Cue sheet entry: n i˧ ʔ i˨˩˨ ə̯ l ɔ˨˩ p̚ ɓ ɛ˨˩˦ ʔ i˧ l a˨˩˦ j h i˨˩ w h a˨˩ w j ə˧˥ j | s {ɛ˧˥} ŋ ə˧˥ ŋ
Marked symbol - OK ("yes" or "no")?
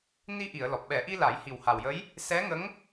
yes